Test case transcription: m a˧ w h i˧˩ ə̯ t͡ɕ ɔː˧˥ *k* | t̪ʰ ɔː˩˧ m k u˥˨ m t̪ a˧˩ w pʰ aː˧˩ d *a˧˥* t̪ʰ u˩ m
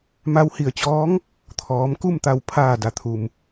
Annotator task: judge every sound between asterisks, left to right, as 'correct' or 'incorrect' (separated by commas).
incorrect, incorrect